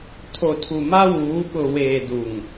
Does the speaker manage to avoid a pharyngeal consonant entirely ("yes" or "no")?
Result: yes